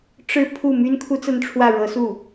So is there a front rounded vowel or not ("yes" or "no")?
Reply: yes